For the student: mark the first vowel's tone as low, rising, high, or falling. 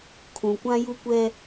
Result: low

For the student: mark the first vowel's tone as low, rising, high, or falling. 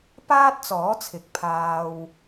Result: high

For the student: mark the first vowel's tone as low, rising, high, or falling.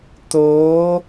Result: rising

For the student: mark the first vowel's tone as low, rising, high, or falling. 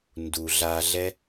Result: low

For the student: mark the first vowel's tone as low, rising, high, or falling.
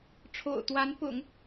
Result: low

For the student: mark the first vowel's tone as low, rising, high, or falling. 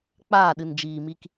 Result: falling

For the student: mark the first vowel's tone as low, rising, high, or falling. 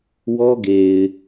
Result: high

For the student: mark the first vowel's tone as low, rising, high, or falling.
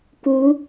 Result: rising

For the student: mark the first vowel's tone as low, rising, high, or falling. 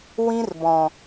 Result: high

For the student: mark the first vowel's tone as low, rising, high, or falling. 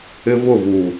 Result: high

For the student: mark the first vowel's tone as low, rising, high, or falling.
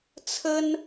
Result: high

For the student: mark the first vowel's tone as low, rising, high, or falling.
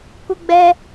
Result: high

